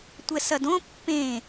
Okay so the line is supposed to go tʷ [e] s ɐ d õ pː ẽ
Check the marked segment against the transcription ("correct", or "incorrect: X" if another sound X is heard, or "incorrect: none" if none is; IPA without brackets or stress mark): incorrect: ɛ